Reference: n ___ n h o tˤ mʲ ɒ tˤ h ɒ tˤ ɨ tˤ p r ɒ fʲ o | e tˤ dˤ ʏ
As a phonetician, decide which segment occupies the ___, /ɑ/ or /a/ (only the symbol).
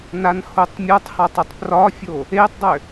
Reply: a